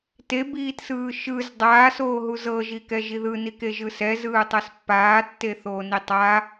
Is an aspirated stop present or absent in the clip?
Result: absent